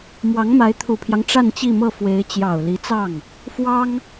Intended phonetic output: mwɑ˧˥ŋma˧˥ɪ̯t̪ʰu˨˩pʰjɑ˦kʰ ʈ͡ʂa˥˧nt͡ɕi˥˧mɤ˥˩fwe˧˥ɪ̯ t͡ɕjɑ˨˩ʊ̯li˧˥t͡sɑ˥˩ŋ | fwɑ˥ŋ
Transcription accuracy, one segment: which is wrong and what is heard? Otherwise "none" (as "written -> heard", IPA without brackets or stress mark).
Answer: kʰ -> ŋ